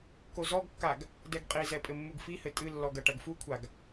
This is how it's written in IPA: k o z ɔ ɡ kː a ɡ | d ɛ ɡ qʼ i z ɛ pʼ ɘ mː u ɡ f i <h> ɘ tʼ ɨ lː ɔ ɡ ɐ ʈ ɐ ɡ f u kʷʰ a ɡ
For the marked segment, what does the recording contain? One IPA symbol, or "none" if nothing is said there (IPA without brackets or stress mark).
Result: h